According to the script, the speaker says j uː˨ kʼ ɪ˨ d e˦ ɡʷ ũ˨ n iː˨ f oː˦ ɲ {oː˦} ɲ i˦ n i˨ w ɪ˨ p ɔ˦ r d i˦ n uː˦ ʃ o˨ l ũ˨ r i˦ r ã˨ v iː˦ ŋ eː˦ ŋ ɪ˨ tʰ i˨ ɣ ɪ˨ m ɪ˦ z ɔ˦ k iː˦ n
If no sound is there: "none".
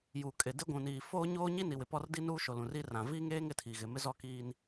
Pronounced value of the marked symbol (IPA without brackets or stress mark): oː˦